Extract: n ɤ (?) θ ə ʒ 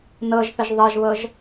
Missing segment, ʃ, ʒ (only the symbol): ʒ